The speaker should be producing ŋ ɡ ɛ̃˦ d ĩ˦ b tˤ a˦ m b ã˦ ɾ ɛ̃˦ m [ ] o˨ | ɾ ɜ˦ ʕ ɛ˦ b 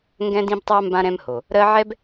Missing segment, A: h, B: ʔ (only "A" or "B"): A